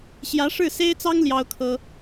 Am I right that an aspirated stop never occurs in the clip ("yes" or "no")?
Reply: no